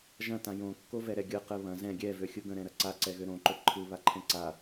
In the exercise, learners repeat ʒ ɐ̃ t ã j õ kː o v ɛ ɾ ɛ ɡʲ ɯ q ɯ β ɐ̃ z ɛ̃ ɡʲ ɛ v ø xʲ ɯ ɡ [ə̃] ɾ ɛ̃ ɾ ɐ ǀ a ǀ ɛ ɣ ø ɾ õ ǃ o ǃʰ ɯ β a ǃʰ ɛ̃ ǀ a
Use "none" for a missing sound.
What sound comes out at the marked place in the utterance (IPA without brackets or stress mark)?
ə̃